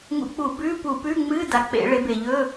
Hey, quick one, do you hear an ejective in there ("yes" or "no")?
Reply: no